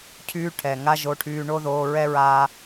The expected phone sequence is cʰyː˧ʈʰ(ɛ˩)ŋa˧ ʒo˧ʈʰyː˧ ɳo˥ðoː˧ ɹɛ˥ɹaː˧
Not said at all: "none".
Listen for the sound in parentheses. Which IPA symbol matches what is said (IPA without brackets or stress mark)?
ɛ˩